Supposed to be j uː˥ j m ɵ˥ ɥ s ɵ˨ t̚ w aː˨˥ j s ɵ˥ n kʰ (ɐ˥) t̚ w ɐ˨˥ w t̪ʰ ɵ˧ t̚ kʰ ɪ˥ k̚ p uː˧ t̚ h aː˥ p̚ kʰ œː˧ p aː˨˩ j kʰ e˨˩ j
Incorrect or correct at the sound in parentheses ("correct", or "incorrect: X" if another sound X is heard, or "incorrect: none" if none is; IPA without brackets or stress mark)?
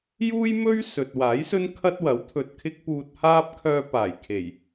correct